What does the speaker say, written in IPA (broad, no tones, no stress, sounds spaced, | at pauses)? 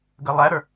ɡ ə lˠ æ ɾ ə˞